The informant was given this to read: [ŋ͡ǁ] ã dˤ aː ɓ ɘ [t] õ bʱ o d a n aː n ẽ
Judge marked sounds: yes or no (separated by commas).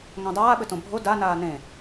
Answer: no, yes